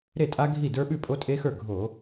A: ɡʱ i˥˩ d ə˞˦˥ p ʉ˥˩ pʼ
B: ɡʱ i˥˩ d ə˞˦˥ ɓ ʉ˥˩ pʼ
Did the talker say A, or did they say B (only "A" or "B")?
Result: B